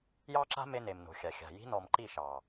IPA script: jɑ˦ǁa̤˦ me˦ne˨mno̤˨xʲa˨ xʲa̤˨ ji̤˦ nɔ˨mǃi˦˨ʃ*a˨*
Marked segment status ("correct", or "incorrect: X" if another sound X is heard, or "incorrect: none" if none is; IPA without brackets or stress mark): incorrect: ɑ˨